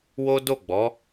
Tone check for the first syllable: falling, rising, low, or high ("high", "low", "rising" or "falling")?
high